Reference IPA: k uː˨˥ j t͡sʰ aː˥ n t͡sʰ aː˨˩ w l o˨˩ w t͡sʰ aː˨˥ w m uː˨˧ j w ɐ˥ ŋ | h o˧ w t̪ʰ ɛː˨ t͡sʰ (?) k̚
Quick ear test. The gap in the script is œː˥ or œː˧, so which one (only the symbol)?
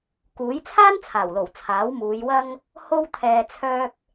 œː˧